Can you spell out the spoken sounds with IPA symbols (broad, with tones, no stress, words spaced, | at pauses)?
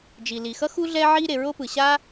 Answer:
d͡ʒi˩li˩xʌ˥ xu˥ ɮɛ˥ʕi˥ɾe˩ ɹo˥pɯ˩ɕa˥